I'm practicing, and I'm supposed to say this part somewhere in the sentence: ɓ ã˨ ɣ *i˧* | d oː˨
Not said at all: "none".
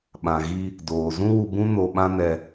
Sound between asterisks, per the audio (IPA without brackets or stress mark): i˧